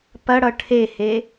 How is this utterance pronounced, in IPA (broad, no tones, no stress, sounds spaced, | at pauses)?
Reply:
p ɐ ɽ ʌ ʈʰ e h e